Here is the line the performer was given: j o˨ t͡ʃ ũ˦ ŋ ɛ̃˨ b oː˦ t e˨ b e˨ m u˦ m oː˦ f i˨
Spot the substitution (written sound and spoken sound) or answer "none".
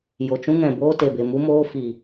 none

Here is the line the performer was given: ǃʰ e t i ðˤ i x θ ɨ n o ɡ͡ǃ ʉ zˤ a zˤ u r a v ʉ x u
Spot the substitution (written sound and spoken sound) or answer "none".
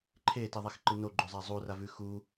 θ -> ǃ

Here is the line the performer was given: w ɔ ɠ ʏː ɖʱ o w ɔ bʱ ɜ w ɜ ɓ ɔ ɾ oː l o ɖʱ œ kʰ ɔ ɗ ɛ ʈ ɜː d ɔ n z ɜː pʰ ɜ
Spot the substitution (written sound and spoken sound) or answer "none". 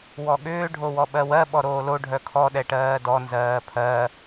bʱ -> ɓ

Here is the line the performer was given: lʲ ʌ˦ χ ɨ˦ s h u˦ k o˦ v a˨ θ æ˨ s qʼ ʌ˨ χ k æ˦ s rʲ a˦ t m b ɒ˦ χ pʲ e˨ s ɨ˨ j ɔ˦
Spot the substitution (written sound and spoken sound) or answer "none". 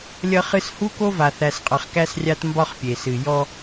none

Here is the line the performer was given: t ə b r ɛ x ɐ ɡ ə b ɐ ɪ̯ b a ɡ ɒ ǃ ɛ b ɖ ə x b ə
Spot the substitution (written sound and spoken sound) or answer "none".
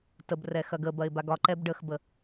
none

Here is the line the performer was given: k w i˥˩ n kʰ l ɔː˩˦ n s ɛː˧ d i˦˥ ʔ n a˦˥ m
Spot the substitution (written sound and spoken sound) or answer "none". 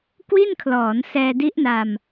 a˦˥ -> a˧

